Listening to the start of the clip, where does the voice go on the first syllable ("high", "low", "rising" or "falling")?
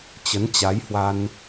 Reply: rising